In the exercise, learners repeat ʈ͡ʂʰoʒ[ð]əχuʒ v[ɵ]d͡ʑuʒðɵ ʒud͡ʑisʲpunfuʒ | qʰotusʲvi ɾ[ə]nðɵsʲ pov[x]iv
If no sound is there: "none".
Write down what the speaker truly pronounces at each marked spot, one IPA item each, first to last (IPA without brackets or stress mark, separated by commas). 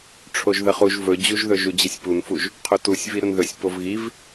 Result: ð, ɵ, ə, ɣ